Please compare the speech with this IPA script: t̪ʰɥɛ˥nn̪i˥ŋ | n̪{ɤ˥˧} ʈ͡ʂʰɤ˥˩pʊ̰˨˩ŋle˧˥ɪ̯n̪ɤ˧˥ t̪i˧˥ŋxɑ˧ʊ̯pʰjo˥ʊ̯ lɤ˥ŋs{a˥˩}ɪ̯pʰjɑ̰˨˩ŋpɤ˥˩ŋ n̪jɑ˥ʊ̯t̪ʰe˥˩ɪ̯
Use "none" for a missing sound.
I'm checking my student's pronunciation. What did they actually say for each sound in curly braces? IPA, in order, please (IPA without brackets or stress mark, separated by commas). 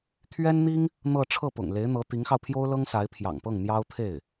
ɤ˥˧, a˧˥